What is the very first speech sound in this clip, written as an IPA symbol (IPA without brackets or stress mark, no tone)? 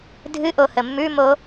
dʱ